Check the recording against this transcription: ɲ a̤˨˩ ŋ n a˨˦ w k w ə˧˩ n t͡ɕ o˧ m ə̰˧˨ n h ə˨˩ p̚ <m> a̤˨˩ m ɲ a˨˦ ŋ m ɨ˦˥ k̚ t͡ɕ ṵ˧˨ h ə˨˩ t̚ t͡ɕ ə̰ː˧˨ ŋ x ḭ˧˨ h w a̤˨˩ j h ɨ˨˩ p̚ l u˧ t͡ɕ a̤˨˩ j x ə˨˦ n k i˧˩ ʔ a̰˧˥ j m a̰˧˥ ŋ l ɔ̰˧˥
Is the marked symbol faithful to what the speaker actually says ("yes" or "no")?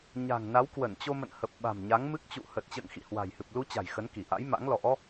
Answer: no